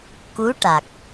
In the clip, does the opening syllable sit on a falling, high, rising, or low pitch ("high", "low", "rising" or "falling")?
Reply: rising